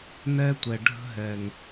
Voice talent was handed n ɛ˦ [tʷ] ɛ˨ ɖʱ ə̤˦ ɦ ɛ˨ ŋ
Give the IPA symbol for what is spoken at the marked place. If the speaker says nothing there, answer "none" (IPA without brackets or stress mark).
tʷ